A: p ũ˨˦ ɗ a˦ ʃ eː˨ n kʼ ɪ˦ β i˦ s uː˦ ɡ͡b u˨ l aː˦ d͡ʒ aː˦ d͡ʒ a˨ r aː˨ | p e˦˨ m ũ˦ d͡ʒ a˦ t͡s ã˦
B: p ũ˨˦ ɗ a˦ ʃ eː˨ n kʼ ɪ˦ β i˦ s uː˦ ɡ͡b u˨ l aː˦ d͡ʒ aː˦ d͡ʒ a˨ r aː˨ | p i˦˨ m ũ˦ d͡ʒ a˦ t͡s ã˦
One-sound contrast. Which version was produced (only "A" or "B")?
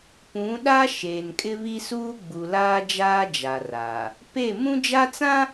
A